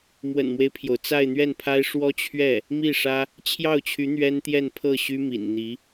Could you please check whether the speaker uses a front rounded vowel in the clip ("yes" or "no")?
yes